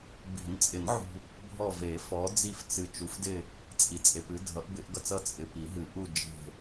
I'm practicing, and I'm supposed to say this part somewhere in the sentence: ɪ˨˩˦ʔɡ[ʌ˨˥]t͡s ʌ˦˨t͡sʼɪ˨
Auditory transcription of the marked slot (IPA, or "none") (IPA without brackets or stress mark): ʌ˦˨